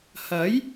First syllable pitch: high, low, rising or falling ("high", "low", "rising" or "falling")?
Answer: rising